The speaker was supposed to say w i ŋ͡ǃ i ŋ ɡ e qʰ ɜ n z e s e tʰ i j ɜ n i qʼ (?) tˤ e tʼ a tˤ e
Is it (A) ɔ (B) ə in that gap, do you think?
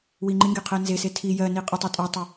B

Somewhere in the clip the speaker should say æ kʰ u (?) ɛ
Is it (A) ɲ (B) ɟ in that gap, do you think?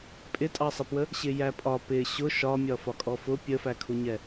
A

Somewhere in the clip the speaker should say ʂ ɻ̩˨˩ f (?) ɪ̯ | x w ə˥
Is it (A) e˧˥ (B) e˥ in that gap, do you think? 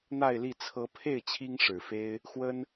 B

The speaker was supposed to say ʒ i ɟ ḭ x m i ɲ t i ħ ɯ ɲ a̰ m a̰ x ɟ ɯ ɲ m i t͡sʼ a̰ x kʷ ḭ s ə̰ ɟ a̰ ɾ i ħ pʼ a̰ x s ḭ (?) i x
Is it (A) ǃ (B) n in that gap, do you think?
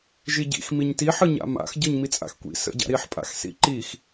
A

